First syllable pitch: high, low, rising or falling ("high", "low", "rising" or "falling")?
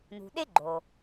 low